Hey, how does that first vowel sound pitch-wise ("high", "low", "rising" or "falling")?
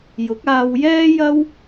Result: rising